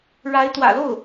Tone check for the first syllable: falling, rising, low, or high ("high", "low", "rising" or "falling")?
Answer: rising